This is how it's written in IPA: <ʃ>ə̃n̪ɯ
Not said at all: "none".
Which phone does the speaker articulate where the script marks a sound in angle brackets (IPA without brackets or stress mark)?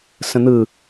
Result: s